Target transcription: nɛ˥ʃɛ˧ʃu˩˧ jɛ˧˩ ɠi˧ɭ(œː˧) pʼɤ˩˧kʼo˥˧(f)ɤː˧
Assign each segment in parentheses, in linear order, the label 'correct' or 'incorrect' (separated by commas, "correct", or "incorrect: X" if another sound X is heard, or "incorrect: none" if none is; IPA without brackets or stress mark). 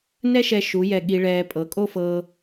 incorrect: ɛː˧, correct